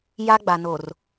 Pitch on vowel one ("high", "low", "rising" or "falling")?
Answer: high